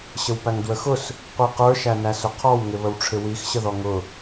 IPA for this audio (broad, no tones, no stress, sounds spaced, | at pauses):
ɕ ə w p æ ŋ d w ə x ʊ s | qʷ i q ə˞ ʃ æ n æ s ʊ qʰ ɔ w ŋ ɪ β ə w ʈ͡ʂʰ ɪ w i x ɕ ə ð ɔ ŋ ʊ